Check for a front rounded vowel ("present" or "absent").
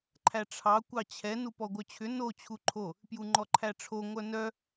present